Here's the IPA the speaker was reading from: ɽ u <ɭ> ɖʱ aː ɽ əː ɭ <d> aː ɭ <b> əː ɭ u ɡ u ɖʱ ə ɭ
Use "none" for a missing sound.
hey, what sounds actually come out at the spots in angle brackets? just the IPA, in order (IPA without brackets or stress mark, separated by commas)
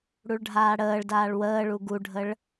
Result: ɭ, d, w